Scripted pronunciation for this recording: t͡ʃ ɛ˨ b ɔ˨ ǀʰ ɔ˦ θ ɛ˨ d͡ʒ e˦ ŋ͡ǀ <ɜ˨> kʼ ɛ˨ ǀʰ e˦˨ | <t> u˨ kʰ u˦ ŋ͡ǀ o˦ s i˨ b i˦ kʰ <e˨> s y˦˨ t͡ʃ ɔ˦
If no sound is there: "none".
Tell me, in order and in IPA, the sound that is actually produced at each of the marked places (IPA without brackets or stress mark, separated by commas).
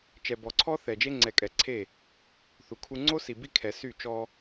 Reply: ɛ˨, θ, ɛ˨